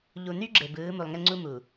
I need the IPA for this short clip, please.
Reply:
ʎ u˨ n y˦ ɡ͡ǁ e˨ b ɯː˨˦ m u˨ lˠ ŋ e˦ ŋ͡ǀ u˦ m u˨

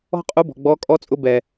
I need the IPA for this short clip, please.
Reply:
ɔ̤˥ qʼ u˧˥ b ɔ̤˩ ɡ͡b ɔ˧˥ kʼ ɔ˧˥ t͡sʼ ʊ˧˥ b ɛ˩

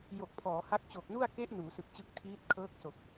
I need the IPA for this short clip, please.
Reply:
j o˨˩ k̚ pʰ ɔː˩˦ h a˦˥ k̚ t͡ɕ o˨˩ k̚ n u˥˩ a̯ k e˦˥ ʔ n uː˩˦ s ɯ˨˩ k̚ t͡ɕ ɯ˦˥ k̚ tʰ iː˦˥ t̚ kʰ ɤː˦˥ k̚ s o˨˩ k̚

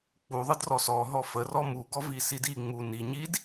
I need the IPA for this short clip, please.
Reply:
k͡p u ðˤ ɯ d r ɔ s ɔ ɦ ɔ f ə r ɔ m u ɡ ɔ v i s i d i ŋ͡m u n i ɲ i d

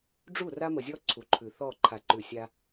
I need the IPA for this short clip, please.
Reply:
ɖ͡ʐ u˦˨ r a˦ m ə˨ zʲ ɔ˦ ǀʰ u˨ ǃʰ ʉ˨ θ ɔ˦˨ ǃʰ a˨ ǃ ʉ˨ sʲ a˦

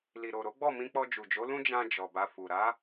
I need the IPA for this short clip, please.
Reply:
l i˨ ɾ o˨ ɾ o˨˦ ɡ͡b ɔ˦˨ m ĩ˧ k͡p ɔ˧ d͡ʒ u˨ d͡ʒ o˨˦ l ũ˦ d͡ʒ ã˧ d͡ʒ ɔ˨ b a˧ f u˨ ɾ a˨˦

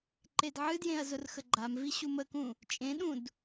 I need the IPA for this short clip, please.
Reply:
ǃ e d ʕ ɨ d j ẽ ɐ̯ z ʊ r x ə ɡ͡ǃ a m v i ɕ u m ə k ũ | t͡ʃʼ ẽ ɗ ũ d

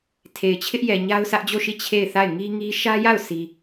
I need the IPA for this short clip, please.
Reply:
tʰ e˨ ɪ̯ t͡ɕʰ ɪ˦ ʔ j ɛ˨ ɲ a˦ ʊ̯ s ä˦ ʔ d͡ʑ o˦˨ ʃ i˦˨ t͡ɕʰ e˦˨ ɪ̯ θ a˦˨ ɪ̯ ŋ i˦ ŋ i˦ ʃ ä˦ j a˦˨ ʊ̯ s i˦

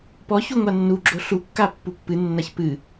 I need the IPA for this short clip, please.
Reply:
p ɔ ç u ŋʷ a nː u ɡ͡ǁ o ɬ u kː a pː u pː ɨ nː a ç p ɨ

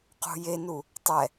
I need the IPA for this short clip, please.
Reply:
q ṳ j e n u | tˤ ɛ

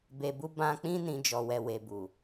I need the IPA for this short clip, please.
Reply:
b e˨ b u˧ b ã˧ k͡p ĩ˦ n ĩ˦ d͡ʒ ɔ˧ w ɛ˧ w e˧ b u˨

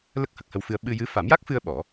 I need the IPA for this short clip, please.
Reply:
l ə˦˥ k̚ h ə˨˩ k̚ h ə˧ w f ɨ˧ ə̯ ɓ ɨ˧ j ɨ˧˥ f a˨˩˦ m j a˦˥ k̚ f ɨ˧ ə̯ ɓ ɔ˨˩˦

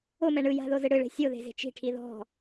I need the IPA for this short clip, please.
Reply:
o m ɛ ɳ ɯ j a̤ ð o z ɯ ɽ ɯ ɭ e̤ sʲ o ð e̤ z e̤ t͡ʃ i̤ ʈʰ i ð ɔ̤

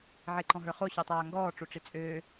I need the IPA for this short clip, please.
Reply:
ʕ e ǃ ɔ̃ ɦ ə˞ χ o ɕ ɔ tˤ aː ŋ ɡ ɔː ʈ͡ʂ o ʈ͡ʂ i t͡sʼ øː

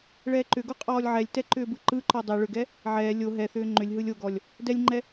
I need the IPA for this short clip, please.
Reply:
ɭ ɛː ǃ ʏ ɡ o qʼ ɔː lʲ ʕ ɛ lʲ t ɛ ǃ ʏː b ɯ ǃ ɯ ǃ ɔ dˤ ɛ ɭ ʏ ɡ ɛ | ʕ ɛː lʲ o ɦ ɛ θ ʏː ŋ͡ǃ ʏ lʲ ɦ ɯ lʲ o ɡ ɔ lʲ | d ɛ lʲ ŋ͡ǃ ɛ

